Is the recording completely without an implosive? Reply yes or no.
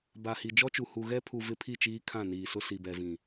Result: yes